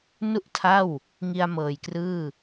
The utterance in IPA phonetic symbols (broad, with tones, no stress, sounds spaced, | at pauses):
n u˥˩ ʔ tʰ a˥˩ w | ŋ i˧ a̯ m ɤː˨˩ j k r ɯː˥˩